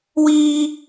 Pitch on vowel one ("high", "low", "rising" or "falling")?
high